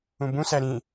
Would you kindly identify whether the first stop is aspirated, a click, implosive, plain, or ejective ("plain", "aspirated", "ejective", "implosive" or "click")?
plain